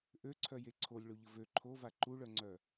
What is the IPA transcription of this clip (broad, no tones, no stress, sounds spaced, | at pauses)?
ʔ ø ǀʰ œ j e ǀʰ o lʲ ɭ o ʎ ə v ø ǃʰ o v a ǃ u ɭ œ ŋ͡ǀ œ